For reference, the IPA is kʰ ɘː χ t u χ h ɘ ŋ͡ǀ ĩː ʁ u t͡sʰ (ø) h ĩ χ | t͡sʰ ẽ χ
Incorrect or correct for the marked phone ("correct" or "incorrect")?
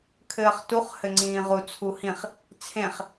incorrect